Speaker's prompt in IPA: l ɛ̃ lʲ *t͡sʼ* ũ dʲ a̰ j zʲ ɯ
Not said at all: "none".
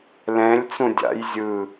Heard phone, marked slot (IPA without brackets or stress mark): t͡s